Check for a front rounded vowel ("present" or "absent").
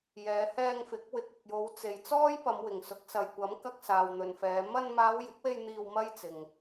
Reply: absent